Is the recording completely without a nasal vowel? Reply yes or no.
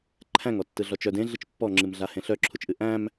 no